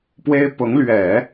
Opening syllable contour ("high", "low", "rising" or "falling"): high